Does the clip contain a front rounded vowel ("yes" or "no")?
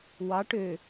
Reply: yes